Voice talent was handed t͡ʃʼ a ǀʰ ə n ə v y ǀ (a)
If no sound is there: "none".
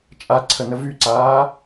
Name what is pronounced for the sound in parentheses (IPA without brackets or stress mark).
aː